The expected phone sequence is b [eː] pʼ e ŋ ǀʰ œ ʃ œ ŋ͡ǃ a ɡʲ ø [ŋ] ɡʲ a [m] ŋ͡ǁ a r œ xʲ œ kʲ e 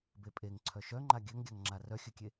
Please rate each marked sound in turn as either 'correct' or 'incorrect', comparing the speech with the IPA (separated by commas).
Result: incorrect, correct, incorrect